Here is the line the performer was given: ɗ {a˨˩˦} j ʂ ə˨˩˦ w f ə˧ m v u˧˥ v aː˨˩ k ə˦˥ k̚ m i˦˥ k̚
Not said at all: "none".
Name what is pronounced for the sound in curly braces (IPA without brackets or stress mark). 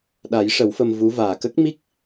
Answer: a˨˩˦